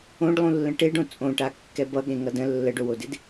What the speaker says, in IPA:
õ ɖ lˠ ũ lː ə̃ ʈ e ɖ õ t͡sʼ õ ʈ a kː ɛ b ʌ ɠ ẽ ŋ ʌ d ə̃ lː ə ɖ o w o d ɪ d

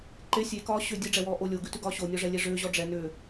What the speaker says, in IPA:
ǃ e sʲ e k ɒː ɕ ʏ dʲ e ɖ͡ʐ ɛ w ɔː ʔ o lʲ o ɡ ʉ t ʉ ɡ ɒː ɕ o nʲ ɔ ʐ ɛ lʲ e ʐ ʏː ʑ ɔ ɖ͡ʐ ɛ n ʏː

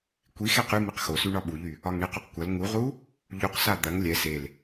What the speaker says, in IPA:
kʷ i x ɛ q y m i q x o s y ɳ ɒ ɓ u ʎ y | ɒ ŋ ɳ i q u q kʷ ɐ l ŋ u ʁ u | ʎ u q s a d̪ ɐ ŋ lʲ ɛ s e l

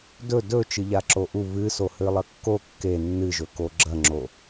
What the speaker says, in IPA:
d ɵ d ɵ t͡ʃ ɨ ʎ a ǁ o ʔ u β ɨ s o h ɨ lˠ ɐ kː o kː e nː ɨ ʒ ɵ k o ɡ͡ǁ ɐ ŋ͡ǁ o

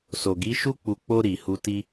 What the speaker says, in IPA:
s o˨ ɡ i˨˦ ʃ u˦ k͡p u˧ k͡p o˧ ɾ i˨ h u˧ t i˧

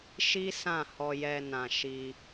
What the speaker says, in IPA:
ʃ i˦ s ã˦˨ h ɔ˧ j ɛ˧ n ã˨ ʃ i˧

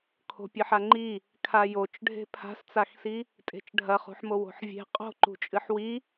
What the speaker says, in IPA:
kʰ o̤ pʲ ɨ ħ a ŋ͡ǃ i | kʰ a j o t͡ʃ ɖʱ e̤ pʰ a̤ s t͡s a x s i | tʼ e̤ t͡ʃ ɖʱ ɐ χ ṳ ħ m o w o̤ ħ vʲ e̤ qʼ o̤ ǃ ṳ t͡ʃʼ ɨ ħ w i

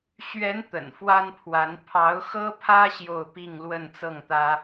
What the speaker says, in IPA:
ɕ ɥ ɛ˧˥ n t̪ ə̰˨˩ n f w a˥ n pʰ w a˧˥ n pʰ ɑ˧˥ ʊ̯ x ɤ˥ pʰ ä˥ ɕ j o˥˧ ʊ̯ p i˥˧ ŋ l w ə˥˧ n t͡s ɤ˥˩ ŋ t̪ ä˥

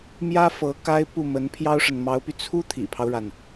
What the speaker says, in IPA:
m j ä˥ f ɤ˧˥ k a˥ ɪ̯ p u˥˩ m ə˧˥ n pʰ j ɑ˥ ʊ̯ ʂ ə˨ n m ɑ˧˥ ʊ̯ p y˧ t͡sʰ u˥ t̪ʰ ḭ˨˩ pʰ ɑ˦ ʊ̯ ɻ a˩ n

